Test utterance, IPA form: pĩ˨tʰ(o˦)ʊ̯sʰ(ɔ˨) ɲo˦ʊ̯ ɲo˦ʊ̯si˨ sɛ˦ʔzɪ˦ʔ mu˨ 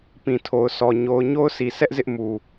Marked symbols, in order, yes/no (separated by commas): no, yes